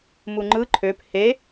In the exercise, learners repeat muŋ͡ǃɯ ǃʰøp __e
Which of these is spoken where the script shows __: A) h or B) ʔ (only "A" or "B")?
A